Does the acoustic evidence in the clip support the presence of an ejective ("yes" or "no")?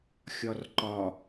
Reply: no